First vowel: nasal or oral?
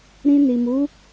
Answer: nasal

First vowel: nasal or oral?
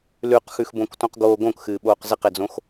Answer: oral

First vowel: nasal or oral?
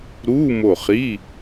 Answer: oral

